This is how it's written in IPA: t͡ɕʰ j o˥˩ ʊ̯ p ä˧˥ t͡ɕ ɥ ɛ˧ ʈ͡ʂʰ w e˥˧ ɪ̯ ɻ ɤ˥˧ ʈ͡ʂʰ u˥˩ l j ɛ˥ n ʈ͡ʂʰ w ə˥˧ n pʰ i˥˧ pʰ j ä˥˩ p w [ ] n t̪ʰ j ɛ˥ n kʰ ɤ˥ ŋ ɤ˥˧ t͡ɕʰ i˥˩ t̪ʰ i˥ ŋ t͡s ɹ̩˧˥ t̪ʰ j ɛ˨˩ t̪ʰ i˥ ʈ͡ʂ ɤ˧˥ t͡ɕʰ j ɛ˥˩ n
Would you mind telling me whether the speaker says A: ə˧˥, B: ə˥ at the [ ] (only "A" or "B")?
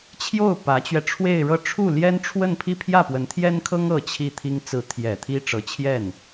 A